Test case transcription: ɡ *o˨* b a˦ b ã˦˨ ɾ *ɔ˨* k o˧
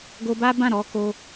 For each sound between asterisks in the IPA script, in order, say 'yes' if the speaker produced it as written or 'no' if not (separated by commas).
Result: no, no